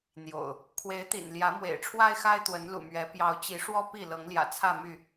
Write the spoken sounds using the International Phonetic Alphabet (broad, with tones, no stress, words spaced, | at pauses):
n̪jo̰˨˩ʊ̯ | kʰwe˨˦ɪ̯t̪ḭ˨˩n ljä˨˦mwḛ˨˩ɪ̯ʈ͡ʂʰwa˦ɪ̯xa˦ɪ̯ t̪wə˨˦nlṵ˨˩mɥɛ˨˦ pjɑ˨˦ʊ̯t͡ɕi˨˦ ʂwɔ˦ pi˥˨ lɤ˨˦ŋljä̰˨˩t͡sʰä˥˨my˥˨